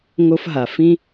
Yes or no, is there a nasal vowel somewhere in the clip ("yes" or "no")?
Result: yes